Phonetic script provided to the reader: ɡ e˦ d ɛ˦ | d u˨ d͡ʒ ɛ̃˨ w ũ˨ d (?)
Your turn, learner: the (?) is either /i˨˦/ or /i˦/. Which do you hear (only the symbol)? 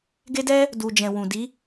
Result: i˨˦